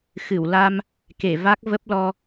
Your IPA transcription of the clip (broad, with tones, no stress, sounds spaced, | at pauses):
x ɨ˧˩ w l a˧ m | k e˧˩ v a˦˥ k̚ v ə˦˥ p̚ l ɔ˧